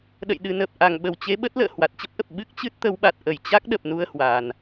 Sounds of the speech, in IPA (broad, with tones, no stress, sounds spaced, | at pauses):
ɗ ə̰˧˨ j ɗ ɨ˨˩ n əː˨˩ p̚ ʔ a˧˩ ŋ ɓ ə˧˩ w t͡ɕ e˨˦ ɓ ə˦˥ t̚ l ə̰ː˧˨ h w a˨˩ t̚ t͡ɕ ə˦˥ p̚ ʔ ə˨˩ p̚ ɓ ɨ˦˥ k̚ t͡ɕ ɨ˦˥ t̚ t̪ ə˨˦ w ɓ a˨˩ t̚ ʔ ə˧˩ j t͡ɕ a˦˥ k̚ ɗ ə˨˩ p̚ n u˧ ə̯ h w aː˨˩ n